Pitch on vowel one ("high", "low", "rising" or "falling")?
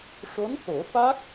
rising